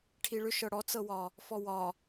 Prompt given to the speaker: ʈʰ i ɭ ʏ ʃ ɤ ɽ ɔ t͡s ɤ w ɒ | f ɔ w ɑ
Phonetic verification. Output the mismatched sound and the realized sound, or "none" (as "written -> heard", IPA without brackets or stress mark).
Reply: ɑ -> ɒ